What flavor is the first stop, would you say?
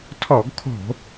aspirated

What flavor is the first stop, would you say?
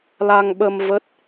implosive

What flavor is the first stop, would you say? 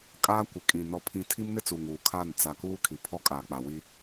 ejective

